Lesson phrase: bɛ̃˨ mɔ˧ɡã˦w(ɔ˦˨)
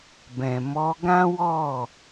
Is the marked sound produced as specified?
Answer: yes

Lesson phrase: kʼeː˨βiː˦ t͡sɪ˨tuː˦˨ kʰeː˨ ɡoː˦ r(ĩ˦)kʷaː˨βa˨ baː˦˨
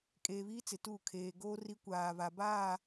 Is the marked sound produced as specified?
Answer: no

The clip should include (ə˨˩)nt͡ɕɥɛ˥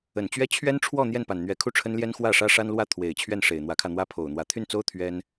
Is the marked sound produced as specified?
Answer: yes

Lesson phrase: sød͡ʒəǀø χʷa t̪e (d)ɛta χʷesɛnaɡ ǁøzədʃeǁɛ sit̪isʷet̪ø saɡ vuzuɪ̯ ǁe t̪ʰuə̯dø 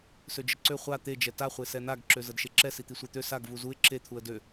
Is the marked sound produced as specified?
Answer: no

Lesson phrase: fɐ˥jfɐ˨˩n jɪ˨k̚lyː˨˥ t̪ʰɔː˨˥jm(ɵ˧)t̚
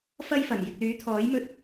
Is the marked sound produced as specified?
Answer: yes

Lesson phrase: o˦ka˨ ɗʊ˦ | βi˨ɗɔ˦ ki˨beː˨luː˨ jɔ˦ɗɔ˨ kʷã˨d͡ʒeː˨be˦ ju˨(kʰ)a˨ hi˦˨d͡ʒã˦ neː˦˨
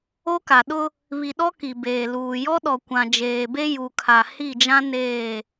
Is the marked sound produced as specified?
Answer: yes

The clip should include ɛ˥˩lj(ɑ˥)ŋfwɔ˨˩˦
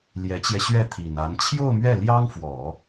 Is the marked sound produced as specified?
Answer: yes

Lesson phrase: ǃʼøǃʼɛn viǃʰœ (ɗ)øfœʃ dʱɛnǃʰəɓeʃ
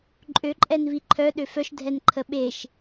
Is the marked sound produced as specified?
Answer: yes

